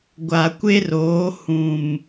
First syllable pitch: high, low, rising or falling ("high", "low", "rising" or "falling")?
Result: low